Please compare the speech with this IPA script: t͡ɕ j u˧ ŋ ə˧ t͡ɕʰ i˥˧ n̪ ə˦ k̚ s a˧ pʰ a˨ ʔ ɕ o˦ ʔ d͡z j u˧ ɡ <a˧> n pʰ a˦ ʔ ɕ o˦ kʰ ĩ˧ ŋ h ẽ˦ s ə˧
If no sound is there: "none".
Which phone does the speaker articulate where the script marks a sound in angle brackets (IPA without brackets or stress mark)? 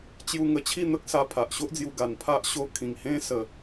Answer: a˧